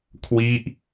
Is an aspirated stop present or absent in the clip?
present